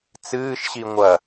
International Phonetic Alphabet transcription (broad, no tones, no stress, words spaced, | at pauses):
t͡sɨːʃɕi ŋʷɐ